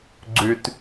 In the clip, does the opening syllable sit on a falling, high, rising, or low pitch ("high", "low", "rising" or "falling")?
low